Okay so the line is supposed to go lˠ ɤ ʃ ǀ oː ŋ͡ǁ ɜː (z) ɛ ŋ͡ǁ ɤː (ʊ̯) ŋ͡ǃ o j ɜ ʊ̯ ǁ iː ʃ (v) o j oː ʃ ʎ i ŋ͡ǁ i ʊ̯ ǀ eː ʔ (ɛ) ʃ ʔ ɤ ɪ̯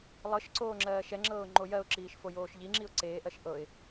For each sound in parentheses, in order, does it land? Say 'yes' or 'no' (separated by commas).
no, yes, no, no